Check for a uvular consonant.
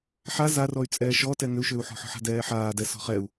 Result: present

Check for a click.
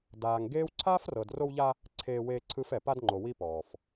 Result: present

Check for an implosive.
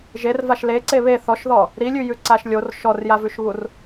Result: absent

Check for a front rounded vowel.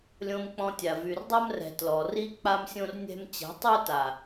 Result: present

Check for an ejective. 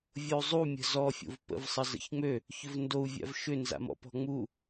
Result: absent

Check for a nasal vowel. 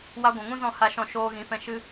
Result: present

